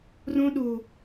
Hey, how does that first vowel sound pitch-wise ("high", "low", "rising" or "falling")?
high